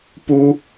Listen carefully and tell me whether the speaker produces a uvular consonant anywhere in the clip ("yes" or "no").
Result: no